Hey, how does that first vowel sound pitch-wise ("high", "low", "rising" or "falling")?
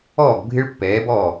falling